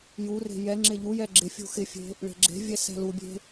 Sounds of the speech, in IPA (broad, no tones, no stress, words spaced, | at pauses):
jure̤ jɛŋ͡ǁɪ ʎujɛ ɡ͡ǁɪfʲṳ xɪfʲe̤ | ɭe̤ɡ͡ǁe̤vʲɛ sɛ̤lubʲe̤